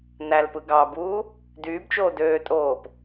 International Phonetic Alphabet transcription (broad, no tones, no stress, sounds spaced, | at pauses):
n æ l p ɯ ɡ ɑ b uː | d yː b t͡ʃ oː d øː tʼ oː p